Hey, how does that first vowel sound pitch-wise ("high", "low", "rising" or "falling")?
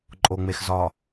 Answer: low